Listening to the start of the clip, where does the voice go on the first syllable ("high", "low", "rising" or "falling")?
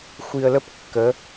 low